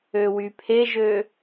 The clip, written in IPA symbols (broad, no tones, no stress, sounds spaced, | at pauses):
ø w y pʰ e ʒ ø